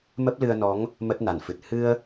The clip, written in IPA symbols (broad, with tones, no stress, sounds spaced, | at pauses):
m ə˦˥ p̚ l ɨ˧ ə̯ n ɔ˨˦ ŋ | m ə˦˥ t̚ n a˧˩ n f ɨ˨˩ t̚ h ɨ˧ ə̯